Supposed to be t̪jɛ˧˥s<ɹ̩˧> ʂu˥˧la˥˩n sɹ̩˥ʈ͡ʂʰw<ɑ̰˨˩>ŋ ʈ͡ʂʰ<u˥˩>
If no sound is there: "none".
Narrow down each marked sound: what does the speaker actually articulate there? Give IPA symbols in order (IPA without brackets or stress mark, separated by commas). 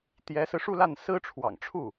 ɹ̩˧, ɑ̰˨˩, u˥˩